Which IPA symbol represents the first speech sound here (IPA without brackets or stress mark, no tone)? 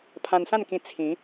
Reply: pʰ